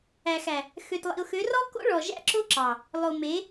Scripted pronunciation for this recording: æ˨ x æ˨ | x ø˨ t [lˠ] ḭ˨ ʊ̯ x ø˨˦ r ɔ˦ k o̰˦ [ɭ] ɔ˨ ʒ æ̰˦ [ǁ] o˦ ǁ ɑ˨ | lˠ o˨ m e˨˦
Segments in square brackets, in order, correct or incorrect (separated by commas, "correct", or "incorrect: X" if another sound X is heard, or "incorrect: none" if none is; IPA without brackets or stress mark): correct, correct, correct